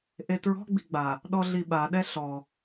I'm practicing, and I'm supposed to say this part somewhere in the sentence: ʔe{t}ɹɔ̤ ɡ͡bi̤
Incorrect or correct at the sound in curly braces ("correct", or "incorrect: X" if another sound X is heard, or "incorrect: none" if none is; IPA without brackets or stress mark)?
correct